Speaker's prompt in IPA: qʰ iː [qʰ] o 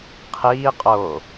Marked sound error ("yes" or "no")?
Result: yes